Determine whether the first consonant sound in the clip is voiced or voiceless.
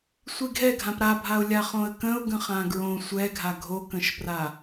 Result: voiceless